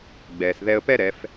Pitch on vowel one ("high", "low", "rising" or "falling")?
low